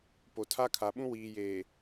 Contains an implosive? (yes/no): yes